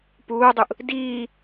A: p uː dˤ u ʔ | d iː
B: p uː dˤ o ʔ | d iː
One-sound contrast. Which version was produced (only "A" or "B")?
A